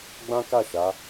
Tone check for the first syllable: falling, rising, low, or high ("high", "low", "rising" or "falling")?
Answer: high